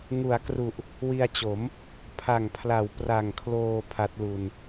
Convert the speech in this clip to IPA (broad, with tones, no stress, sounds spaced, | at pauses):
ŋ u˩˦ a̯ k r u˨˩ ʔ | w i˧ a̯ t͡ɕ o˩˦ m | pʰ a˨˩ ŋ pʰ l a˩˦ w p r a˨˩ ŋ kʰ l oː˧ pʰ a˦˥ t̚ l u˧ n